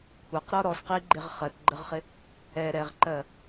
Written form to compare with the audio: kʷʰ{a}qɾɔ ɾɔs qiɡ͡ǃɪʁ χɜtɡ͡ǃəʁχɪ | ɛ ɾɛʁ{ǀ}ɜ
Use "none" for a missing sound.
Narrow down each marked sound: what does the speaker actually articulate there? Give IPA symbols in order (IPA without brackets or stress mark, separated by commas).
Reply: a, ǃ